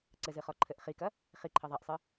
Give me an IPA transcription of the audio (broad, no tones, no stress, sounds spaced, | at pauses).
ǀ ɘ z ɨ χ ɔ ǃʰ ɘ ʔ χ i k ɐ | χ i ǃʰ ɘ ðˤ a ʔ sˤ ɨ